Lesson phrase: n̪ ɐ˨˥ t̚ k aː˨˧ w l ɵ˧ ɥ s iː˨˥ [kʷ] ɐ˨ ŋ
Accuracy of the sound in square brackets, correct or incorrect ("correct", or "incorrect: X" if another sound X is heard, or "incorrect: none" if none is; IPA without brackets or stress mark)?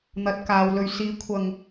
incorrect: kʷʰ